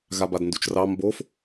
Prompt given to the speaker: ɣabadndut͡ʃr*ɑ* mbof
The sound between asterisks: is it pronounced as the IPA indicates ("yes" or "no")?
yes